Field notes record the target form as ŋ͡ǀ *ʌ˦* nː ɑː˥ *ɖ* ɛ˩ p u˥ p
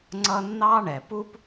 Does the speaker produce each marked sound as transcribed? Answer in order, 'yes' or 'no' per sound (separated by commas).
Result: yes, no